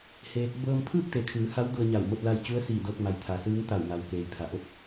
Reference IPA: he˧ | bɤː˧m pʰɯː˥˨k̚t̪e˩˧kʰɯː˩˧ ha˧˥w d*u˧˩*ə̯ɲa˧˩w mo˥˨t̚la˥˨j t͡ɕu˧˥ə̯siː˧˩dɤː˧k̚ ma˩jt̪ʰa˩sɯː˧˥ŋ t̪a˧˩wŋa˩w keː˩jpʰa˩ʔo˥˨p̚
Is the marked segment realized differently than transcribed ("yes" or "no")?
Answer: yes